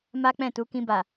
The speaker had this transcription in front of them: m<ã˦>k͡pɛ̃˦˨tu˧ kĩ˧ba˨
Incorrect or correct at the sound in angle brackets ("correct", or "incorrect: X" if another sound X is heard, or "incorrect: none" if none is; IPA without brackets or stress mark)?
incorrect: a˦